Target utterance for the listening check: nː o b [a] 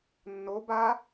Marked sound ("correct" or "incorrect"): correct